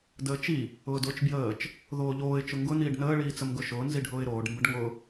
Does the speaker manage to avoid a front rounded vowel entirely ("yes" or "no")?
yes